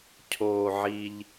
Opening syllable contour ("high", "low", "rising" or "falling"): low